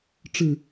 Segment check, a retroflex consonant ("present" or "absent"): present